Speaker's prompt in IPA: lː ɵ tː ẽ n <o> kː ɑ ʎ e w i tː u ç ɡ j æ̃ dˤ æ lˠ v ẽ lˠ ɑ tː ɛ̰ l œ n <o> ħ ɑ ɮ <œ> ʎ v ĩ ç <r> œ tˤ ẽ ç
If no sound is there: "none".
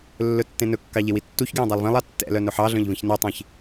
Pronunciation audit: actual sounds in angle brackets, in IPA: ɵ, ɵ, œ̃, n

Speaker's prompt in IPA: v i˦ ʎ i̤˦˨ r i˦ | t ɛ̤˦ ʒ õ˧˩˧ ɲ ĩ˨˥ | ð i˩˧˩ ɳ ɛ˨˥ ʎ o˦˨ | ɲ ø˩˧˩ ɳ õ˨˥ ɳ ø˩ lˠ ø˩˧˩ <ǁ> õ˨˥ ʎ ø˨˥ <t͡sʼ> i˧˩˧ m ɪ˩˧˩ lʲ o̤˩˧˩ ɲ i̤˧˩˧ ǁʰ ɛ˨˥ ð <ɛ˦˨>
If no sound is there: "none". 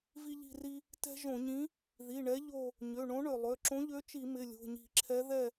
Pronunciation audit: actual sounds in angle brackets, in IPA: ǁ, t͡ʃ, ɛ˦˨

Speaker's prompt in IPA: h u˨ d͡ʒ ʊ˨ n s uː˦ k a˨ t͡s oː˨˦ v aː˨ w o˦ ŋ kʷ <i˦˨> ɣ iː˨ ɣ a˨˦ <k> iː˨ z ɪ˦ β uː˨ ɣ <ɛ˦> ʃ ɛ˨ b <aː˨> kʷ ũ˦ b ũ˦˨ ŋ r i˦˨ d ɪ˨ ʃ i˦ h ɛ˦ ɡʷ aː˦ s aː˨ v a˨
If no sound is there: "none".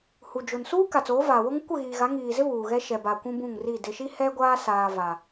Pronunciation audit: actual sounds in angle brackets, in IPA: ɪ˦˨, ŋ, ɛ˦, a˨

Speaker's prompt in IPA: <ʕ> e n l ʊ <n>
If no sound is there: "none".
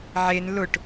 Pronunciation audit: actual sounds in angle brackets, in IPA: ʕ, ʈ

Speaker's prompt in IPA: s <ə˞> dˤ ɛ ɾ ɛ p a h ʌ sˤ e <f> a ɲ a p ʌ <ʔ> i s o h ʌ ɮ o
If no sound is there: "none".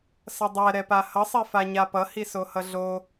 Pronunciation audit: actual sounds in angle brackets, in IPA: ʌ, f, h

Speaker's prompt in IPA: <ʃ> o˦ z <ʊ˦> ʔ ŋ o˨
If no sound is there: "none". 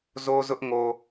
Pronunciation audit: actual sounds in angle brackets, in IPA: z, ʊ˦

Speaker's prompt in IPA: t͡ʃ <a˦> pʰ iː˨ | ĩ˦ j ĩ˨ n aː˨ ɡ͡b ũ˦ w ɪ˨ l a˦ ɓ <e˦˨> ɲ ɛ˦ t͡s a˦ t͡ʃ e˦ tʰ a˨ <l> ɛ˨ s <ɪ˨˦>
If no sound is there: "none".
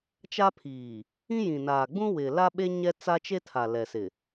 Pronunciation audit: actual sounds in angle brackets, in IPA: a˦, e˦, l, ɪ˨

